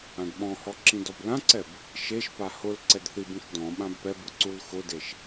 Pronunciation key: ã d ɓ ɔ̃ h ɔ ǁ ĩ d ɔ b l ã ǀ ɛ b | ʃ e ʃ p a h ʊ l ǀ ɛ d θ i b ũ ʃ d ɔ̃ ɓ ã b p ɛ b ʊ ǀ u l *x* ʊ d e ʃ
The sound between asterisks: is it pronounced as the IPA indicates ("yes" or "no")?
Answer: yes